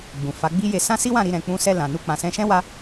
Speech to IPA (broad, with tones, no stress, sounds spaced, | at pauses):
ɡ͡b ũ˨ f a˨˦ ɡ͡b i˦ j e˧ s ã˦ s i˦ w ã˦˨ ɾ i˧ ɾ ɛ̃˨ k͡p ũ˧ s ɛ˧ l ã˨ n u˧ k͡p ã˨ s ɛ̃˧ ʃ ɛ̃˦ w a˦